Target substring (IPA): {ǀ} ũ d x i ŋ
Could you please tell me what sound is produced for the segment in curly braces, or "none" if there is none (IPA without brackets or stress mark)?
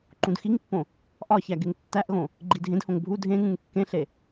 ǃ